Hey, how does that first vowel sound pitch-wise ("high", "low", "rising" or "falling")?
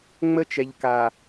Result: high